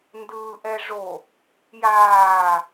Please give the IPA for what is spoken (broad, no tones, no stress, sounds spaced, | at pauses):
n d ɯː ʔ ɛ ʐ o | j aː